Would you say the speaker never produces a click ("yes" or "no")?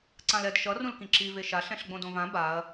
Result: no